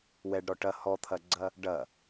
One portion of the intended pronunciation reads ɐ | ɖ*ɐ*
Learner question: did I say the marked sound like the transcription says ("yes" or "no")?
yes